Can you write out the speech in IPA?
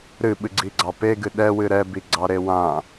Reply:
ɾɨɓɨɡ͡ǀiɡ͡ǀɑ peɡɨ ɗɛwɨ ɾɛbiɡ͡ǀɑɾe wã

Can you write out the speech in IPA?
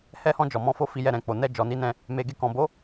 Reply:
hɛ˧hɔ̃˧ d͡ʒɔ˨mɔ̃˧fo˧ fi˧jɛ˧ɾɛ̃˨k͡po˨ nɛ˧d͡ʒɔ˨ni˧nɛ̃˧ | me˨ɡe˧kɔ̃˨bo˨˦

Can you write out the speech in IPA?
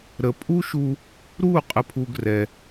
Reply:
ɾə˨˦pʼu˦ʃu˧ | ɾu˦˨ qʼə˦pʰu˦ɡrɛ˧

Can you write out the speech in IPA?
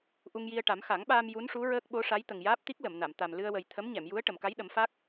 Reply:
ʔu˧ŋji˧ə̯ʈa˨˩˦m xa˨˩˦ŋɓaː˧m ju˧˥nʂu˧˥ ɹəː˦˥k̚ɓo˧˥ʂa˧˥j t̪ə˨˩ŋjaː˦˥p̚ t̪i˦˥k̚lə˨˩˨mna˨˩˨m t̪a˨˩m lɨ˧ə̯wə˨˩j t̪ʰə˧˥mɲɛ˨˩˨mju˧˥ə̯ ʈə˨˩˨mka˧˥jɗə˨˩˦mfa˦˥k̚

